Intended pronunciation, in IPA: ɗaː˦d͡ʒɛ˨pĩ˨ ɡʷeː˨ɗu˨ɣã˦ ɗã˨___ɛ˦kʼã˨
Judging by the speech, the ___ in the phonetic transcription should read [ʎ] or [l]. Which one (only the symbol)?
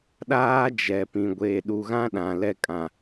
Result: l